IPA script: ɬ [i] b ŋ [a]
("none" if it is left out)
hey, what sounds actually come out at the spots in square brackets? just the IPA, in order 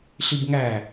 i, æ

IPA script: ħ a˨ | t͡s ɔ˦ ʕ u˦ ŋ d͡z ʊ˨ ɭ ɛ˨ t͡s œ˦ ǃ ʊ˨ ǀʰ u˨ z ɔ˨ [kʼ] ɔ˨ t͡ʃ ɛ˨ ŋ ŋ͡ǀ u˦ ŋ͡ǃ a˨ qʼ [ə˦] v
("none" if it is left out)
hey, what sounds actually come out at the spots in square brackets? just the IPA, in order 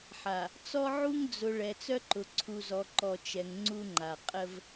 ǃ, ə˦

